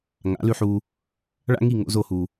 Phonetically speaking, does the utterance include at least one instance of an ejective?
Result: no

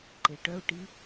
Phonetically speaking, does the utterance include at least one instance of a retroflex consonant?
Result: yes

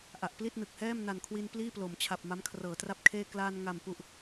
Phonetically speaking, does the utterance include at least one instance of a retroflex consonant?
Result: no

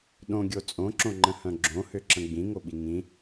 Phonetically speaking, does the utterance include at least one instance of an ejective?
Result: yes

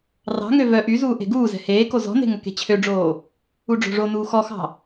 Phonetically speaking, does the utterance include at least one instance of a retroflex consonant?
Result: yes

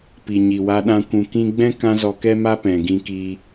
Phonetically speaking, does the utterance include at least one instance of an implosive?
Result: yes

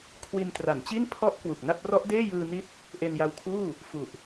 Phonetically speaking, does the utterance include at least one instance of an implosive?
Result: no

